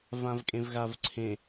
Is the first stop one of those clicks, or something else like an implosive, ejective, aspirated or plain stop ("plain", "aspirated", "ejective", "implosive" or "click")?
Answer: ejective